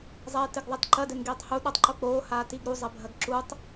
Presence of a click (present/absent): present